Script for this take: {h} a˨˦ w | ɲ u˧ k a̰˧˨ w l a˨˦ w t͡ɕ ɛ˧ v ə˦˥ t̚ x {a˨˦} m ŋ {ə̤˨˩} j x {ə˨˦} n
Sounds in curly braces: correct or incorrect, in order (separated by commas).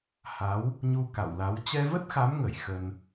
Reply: correct, correct, incorrect, incorrect